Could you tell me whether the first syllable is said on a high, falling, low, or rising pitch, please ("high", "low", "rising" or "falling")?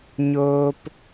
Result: high